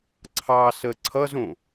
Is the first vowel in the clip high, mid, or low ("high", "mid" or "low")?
low